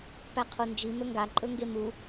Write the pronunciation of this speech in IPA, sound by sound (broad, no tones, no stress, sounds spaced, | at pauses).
p æ qʰ o n d͡ʒ i m ɵ ŋ ɡ a ǃʼ ɵ ŋ ɡ e m u